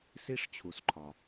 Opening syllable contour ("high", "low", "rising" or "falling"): high